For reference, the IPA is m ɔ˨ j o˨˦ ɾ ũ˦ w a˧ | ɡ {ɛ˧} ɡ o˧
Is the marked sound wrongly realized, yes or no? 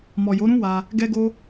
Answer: no